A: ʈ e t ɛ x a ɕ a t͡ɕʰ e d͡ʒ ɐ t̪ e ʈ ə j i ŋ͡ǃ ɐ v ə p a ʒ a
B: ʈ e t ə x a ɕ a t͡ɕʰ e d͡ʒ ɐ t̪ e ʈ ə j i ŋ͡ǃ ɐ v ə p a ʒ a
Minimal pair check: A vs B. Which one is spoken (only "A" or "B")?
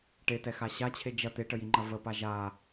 A